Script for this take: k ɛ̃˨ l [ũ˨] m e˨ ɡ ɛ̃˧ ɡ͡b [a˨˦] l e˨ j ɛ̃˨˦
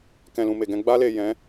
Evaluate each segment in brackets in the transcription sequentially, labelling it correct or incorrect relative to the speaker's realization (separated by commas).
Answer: correct, incorrect